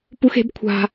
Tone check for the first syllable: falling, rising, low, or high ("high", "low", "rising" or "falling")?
high